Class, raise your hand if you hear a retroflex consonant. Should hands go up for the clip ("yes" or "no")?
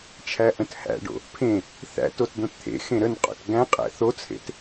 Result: yes